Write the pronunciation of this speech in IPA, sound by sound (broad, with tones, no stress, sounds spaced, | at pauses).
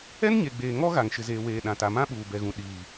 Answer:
ɛ˦ n ɲ e˨ ɡ͡b eː˨ ŋ ɔ˦ ɣ a˨ ŋ ʃ ɪ˨ z eː˨ w eː˨ ɗ ã˨ t a˨ m ã˦ ɓ uː˨ b ɛ˨ ɣ ũ˨ ɗ iː˨